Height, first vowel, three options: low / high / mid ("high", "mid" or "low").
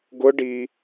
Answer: high